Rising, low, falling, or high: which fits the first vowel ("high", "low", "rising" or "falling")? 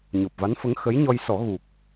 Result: low